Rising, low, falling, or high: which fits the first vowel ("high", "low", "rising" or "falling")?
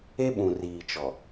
high